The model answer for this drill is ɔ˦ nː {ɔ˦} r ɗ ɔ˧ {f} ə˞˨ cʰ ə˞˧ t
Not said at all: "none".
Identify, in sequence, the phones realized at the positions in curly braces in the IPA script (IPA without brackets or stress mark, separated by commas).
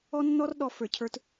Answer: ɔ˦, f